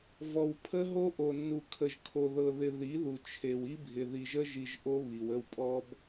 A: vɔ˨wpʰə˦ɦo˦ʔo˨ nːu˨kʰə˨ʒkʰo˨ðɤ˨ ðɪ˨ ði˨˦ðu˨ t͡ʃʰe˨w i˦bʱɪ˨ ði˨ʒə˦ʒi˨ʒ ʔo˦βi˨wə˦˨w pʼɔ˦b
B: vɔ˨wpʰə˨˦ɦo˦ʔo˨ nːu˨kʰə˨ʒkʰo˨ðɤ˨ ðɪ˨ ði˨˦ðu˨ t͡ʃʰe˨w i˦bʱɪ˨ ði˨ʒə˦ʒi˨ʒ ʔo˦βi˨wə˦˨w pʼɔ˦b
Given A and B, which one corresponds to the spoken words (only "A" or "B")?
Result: A